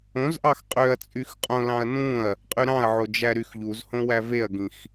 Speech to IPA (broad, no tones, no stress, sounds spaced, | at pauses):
õ z ʔ ɑ x qʼ ø ɐ̯ t͡sʼ y x qʼ õ l ɑ̃ ɐ̯ n ũ ɐ̯ | qʼ y ɾ ɑ̃ ɐ̯ ʕ o d͡ʒ æ ɾ y x ʎ u z h õ w æ v e ɐ̯ ɡ ĩ x